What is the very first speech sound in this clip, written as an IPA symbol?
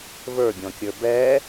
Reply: v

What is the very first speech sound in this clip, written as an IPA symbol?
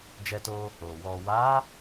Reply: d͡ʒ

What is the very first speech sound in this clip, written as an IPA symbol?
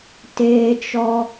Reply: t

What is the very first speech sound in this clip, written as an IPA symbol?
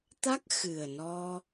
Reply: t̪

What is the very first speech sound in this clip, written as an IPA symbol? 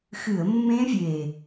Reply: x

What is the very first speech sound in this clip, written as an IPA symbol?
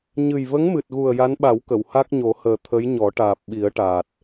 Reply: ɲ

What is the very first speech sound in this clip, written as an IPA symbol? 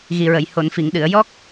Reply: ɣ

